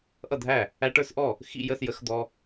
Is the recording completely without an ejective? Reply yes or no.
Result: yes